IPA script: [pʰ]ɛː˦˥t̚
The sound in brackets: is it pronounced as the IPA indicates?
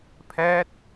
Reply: yes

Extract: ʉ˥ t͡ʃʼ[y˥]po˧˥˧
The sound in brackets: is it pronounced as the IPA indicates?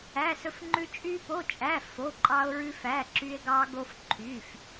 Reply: yes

